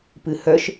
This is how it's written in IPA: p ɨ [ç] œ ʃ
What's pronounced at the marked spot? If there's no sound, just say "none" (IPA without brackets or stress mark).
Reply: h